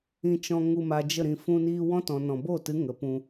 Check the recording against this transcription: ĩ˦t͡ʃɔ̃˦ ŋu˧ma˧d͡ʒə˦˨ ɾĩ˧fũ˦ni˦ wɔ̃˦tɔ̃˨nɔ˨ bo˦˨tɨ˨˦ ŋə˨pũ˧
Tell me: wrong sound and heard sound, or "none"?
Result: ɔ˨ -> ɔ̃˨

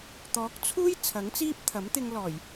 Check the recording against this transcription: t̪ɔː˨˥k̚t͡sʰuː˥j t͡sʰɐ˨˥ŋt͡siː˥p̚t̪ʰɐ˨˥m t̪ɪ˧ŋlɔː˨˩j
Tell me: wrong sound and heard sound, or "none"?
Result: none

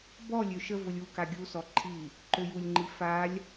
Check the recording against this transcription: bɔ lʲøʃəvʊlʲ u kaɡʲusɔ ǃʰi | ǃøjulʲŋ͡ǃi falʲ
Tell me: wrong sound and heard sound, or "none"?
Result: none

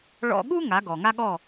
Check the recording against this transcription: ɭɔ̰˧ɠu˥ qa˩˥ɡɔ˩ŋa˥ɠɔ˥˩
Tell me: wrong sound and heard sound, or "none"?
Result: q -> ŋ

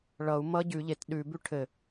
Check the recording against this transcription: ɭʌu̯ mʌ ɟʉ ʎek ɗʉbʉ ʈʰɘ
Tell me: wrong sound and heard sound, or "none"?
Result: k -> t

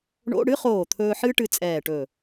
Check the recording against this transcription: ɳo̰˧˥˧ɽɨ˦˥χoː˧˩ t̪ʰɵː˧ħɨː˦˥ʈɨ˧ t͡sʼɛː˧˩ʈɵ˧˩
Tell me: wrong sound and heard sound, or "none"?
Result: none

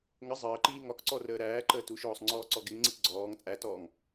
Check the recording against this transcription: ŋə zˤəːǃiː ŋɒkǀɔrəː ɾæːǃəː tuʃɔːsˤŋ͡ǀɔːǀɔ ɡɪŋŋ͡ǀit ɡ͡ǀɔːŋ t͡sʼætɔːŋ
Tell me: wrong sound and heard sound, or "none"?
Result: none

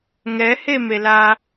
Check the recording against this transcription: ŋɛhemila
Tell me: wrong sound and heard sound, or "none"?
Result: i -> e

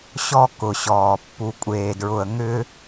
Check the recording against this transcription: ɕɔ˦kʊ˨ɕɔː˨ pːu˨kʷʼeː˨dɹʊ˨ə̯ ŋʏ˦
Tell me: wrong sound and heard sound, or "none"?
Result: none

